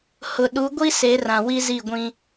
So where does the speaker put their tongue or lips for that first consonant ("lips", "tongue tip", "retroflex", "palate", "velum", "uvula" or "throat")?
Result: throat